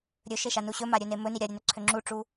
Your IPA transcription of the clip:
ɾʲɵʃeʃanu ɕɵmaɾʲɵne mɵni ɾʲaɾʲønɵǀʰø ŋ͡ǁuʈ͡ʂu

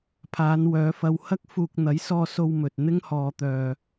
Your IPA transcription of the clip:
pʰaː˨˧nwœː˨˧fɐ˧w hɐ˥k̚fuː˧k̚ n̪ɐ˨˥jsɔː˧so˧wmɵ˨t̚ n̪ɪ˥ŋhɔː˧t̪œː˧

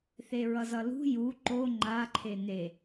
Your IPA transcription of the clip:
θeɹʌzʌlṳ ju ǃo ŋ͡ǃa ǃʰene

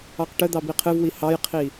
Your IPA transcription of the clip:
ɑqʈəd̪ɑ biqʰɨvwi hɑjqʰi

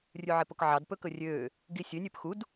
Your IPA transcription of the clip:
rʲʉʕepokʕɑd pɵkɵrʲøː | ɡisʲønʲ øpxud

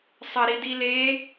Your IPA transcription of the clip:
sˤɐɾidile

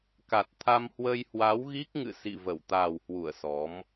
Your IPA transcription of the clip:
ka˨˩t̚t̪ʰa˧m hwə˧jhwa˨˦wɣi˦˥k̚ŋɨ̰˧˨ sḭ˧˨ və˧˩wt̪aː˨˩whwu˧˩ə̯ sɔ˨˦m

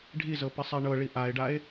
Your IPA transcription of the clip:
ɖʱizɤ pisˤɛɳɤɭi ʔae̯ɖae̯

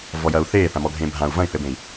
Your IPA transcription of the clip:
vɔjɐːu̯θeː θãmɔɡʱẽːbʱãu̯ vɐ̃i̯θɘbẽi̯

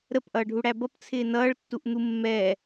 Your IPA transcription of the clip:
ɾəpʔʌːɖʱuɽæ bʌpt͡sʰɪː nʌːɭtːuʔn̪u mːɛ

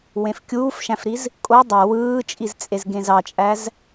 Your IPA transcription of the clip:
wẽfkʲuːfʃæ̃fɾiz | kʼo dˤæ wɯːt͡ʃʼizt͡sʼez ɡẽzɑt͡ʃʼæz

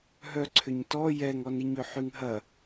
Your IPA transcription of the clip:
ɦœǀʰʏɲtɔ jɛŋɔniɲø ħyŋɦɐ

